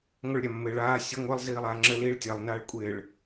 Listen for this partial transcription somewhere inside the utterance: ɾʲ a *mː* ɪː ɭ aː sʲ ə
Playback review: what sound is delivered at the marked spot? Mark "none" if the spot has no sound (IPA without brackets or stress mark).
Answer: mː